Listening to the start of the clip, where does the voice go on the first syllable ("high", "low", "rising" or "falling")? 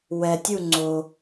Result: low